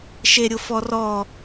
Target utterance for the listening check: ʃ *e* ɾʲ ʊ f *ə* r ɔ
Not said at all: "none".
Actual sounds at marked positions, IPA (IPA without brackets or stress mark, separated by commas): e, ɔ